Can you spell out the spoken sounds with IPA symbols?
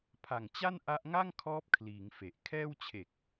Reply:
pʰa˨˩ŋt͡ɕa˥˩n ʔa˦˥ʔŋa˥˩ŋkʰɔː˦˥p̚kʰliː˩˦ŋ fe˨˩ʔ kʰɛː˥˩wt͡ɕʰe˨˩k̚

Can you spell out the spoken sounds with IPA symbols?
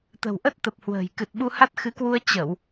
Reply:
t̪ə̤˨˩wʔə˦˥t̚t̪ə˨˩p̚hwə̤ː˨˩j kɨ˨˩t̚ɓu˧ha˦˥t̚ xɨ˨˦kwu˧ə̯ t͡ɕə˧˩˨w

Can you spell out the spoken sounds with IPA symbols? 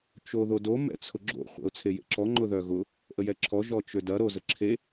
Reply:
t͡ʃoðodo mɛ̰t͡sʰʊɡ͡ǁo̰ χʷɛ̰ʊ̯t͡sʰejḛǁɔ ŋ͡ǃʊðœɣʊ | ʔəjɛǁʰɔ ʒɔt͡ʃødɐ ɾozəǁʰe

